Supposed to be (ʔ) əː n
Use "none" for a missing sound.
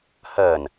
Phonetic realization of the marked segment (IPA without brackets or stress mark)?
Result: h